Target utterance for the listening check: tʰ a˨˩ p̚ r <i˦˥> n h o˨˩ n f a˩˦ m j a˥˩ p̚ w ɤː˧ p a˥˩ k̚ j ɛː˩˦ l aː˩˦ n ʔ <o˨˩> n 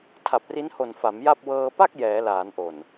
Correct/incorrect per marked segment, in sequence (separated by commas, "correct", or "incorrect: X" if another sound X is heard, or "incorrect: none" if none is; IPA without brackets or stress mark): correct, correct